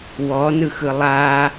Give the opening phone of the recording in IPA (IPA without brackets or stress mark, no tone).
w